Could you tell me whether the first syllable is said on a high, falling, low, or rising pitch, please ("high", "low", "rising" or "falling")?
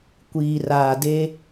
low